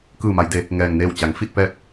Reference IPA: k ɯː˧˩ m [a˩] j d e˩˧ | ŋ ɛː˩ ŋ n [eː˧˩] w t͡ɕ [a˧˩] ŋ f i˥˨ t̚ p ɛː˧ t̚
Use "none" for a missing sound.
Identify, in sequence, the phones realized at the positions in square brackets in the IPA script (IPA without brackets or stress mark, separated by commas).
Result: a˩˧, eː˧˩, a˩˧